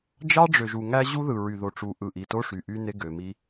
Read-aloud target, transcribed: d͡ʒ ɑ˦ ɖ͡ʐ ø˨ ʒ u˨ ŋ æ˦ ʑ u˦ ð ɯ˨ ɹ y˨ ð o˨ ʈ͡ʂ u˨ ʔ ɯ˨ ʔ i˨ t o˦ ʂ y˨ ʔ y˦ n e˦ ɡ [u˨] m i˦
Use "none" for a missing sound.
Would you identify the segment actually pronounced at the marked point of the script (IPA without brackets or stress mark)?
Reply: ø˨